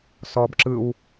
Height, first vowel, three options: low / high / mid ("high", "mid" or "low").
mid